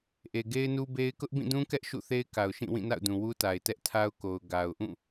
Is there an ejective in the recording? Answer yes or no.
no